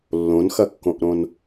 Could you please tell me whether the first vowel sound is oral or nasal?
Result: nasal